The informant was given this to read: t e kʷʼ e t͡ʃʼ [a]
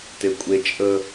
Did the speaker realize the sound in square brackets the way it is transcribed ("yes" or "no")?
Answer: no